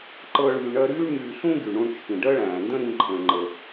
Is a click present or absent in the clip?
present